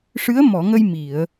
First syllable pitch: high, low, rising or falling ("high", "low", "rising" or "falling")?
rising